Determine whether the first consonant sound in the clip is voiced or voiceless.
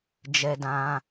voiced